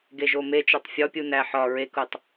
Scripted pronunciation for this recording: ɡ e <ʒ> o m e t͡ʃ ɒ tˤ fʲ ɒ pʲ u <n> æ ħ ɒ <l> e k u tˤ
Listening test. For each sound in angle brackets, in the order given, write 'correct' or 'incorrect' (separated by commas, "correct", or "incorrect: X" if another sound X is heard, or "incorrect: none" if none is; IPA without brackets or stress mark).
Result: correct, correct, incorrect: ɹ